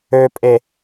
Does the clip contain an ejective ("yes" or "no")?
yes